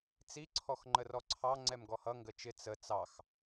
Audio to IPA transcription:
t͡s i ǀʰ ɔ x ŋ͡ǃ ə r ɔ ǀʰ ɑ ŋ͡ǀ ɛ m ɡ ɔ h ʌ ŋ ɡ ə t͡ʃ ɪ t͡s ə t͡s ɑ x

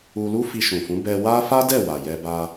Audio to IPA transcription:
u˧ l u˦ f i˧ ʃ ũ˨ f ũ˨˦ b ɛ˧ w a˦ f a˦ d ɛ˦˨ w a˨ j ɛ˧ b a˧

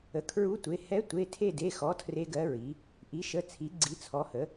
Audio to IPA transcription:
ə˩˧˩ kʰ ɹ u˧˥ tʷ e˩˧˩ h ɛ˧˥ tʷ e˩˧˩ tʰ e˦˨ d e˩˧˩ x ɔ˩˥ tʰ r e˧˥ ɡ ɜ˧˥ ɹ i˩˥ | ʔ i˩˥ ʃ ə˩˧˩ t͡sʰ i˩˥ ɡ͡ǀ i˩˥ t͡sʰ ɔ˩˥ h ə˩˥

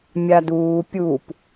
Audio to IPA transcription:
mʲ a d uː pʲ u p

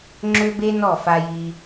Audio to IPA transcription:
ŋ͡ǁ ø˦ b e˦ n ɔ˦˨ f a˧ j i˧

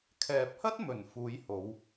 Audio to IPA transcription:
kʰ ɛː˨ p̚ h ɐ˥ t̚ m ɵ˨˩ n f uː˨˧ j h o˨˧ w

